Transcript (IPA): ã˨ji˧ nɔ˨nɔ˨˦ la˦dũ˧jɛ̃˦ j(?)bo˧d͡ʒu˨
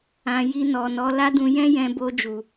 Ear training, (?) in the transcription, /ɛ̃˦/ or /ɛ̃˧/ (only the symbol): ɛ̃˧